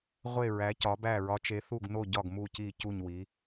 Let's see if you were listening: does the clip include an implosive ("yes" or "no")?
no